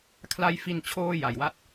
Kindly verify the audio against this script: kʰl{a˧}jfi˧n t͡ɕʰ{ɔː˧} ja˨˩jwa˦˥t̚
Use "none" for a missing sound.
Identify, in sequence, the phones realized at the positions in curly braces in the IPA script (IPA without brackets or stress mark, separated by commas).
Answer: a˧, oː˧